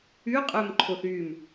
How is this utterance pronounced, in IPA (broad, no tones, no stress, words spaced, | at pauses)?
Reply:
yqʼœm ǃʰoθym